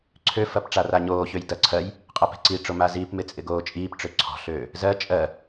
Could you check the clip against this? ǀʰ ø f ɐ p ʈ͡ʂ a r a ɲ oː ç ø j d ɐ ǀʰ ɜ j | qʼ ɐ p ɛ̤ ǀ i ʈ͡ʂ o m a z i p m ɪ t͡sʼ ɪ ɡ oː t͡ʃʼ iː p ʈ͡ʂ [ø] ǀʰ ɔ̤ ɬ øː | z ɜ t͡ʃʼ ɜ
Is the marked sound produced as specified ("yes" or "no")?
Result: yes